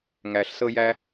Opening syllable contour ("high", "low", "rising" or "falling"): low